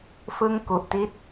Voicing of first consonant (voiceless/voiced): voiceless